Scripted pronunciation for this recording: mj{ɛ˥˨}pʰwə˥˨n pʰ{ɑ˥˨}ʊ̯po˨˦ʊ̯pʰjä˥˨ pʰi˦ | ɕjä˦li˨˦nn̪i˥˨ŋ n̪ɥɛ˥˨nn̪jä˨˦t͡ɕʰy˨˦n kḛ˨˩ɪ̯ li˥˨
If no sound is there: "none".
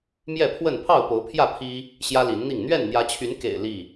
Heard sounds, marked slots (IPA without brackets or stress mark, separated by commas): ɛ˥˨, ɑ˥˨